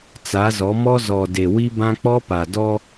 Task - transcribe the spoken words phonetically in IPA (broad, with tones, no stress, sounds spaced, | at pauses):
t͡s a˨˦ z ɔ˨˦ m ɔ˦ z ɔ˨ d e˨ w i˦ b ã˦ k͡p ɔ˦ p a˨ d ɔ˦